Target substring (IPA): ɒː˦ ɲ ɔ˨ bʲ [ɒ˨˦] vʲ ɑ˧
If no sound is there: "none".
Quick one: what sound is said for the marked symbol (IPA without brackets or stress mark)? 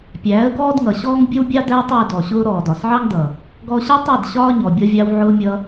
ɒ˧